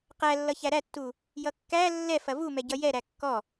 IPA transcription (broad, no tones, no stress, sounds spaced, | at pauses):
q æ lː ʌ ç æ ɾ æ tː u | j ʌ kː æ lː ɛ f ɐ v u m ɛ ɟ ʌ j ɛ ɾ æ kː ɔ